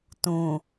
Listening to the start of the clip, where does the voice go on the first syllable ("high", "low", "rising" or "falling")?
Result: low